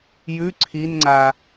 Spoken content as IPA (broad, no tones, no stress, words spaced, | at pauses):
jʉ ǀʰinŋ͡ǀa